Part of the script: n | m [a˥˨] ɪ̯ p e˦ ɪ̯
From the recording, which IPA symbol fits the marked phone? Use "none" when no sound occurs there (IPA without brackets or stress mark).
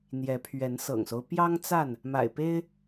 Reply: a̰˨˩